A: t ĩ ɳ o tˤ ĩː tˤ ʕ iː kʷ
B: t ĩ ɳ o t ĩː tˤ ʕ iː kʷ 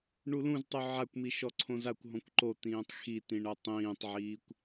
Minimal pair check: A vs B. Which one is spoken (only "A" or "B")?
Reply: A